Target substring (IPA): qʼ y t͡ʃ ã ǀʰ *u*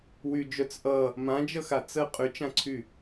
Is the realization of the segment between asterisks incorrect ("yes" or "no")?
yes